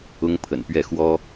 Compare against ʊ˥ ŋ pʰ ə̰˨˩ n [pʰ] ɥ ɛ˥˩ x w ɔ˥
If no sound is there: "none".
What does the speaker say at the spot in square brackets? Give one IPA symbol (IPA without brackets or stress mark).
p